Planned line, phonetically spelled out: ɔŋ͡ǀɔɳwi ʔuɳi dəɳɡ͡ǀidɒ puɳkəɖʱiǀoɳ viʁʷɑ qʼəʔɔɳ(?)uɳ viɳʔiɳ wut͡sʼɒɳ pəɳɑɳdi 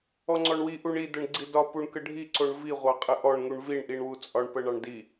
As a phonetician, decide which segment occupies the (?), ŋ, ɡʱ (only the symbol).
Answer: ŋ